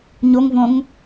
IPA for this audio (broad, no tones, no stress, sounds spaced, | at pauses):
ɲ o ŋ v õ ŋ